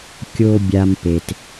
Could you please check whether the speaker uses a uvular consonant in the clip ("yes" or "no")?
no